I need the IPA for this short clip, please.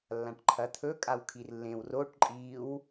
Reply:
lː ã ʈ ǃʰ ɐ t̪ʰ ɵ kʼ a w kʰ i r lː ẽ w r o ʈ ǃʼ i w

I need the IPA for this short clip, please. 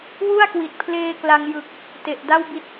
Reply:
w u˥˩ a̯ k w i˨˩ t̚ pʰ l eː˦˥ k l a˧ ŋ j ɯ˨˩ k̚ | t e˨˩ ʔ d a˥˩ w b i˦˥ t̚

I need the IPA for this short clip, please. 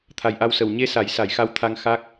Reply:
t̪ʰ a˨˩ j ʔ a˧ w s ə˨˩ w ɲ e˧ s a˨˩˦ j s a˨˩˦ j x a˧˥ w t̪ʰ a˧ ŋ x a˦˥ k̚

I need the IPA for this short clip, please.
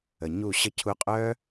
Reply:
ə˨ ɲ u˦˨ ɕ ə˧ cʰ u˧ qʼ œ˦

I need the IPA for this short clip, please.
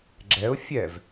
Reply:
ɡ͡ǁ ɛ ʊ̯ fʲ ɛ v

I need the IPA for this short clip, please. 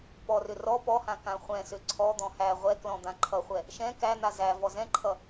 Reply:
p ɔ r ʏ r ɔ p ɔ h ã k ã χʷ ɛ̃ s ʏ ǀʰ ɔ d̪ ɔ̃ h æ ʁʷ ɛ k l ɔ̃ d̪ ã ǃʰ ʌ χʷ ɛ | ʃ ɛ̃ k æ n̪ a z æ v ɔ z ɛ̃ ǃʰ ʌ

